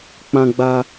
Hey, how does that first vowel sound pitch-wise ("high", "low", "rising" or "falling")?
high